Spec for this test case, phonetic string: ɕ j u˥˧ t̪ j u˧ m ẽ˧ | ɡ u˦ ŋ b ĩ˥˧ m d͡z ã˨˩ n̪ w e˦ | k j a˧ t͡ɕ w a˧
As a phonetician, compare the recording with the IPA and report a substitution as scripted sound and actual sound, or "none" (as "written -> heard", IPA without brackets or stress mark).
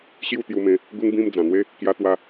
t͡ɕ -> t̪